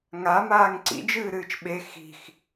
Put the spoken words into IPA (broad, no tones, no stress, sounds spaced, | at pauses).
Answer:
ŋ a m aː ŋ ǀ ḭ d͡ʒ ɨː ɾ ɨː t͡ʃ ɓ e x i̤ x